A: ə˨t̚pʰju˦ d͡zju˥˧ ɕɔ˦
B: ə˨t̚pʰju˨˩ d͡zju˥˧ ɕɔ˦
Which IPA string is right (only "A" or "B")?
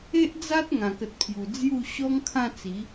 B